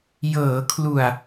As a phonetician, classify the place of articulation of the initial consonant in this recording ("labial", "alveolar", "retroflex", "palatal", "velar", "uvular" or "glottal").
palatal